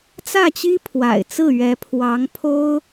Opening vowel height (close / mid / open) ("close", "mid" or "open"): open